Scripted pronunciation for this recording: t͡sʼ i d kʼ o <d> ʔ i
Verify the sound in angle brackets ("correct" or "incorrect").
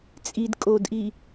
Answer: correct